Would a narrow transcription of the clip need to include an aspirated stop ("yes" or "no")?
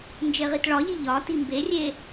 no